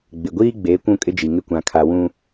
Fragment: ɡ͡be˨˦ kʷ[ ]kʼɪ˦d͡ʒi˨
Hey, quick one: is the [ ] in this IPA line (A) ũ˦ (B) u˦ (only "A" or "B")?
A